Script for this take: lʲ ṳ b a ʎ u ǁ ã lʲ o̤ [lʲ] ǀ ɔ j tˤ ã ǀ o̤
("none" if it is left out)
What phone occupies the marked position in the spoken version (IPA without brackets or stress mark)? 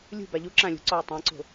none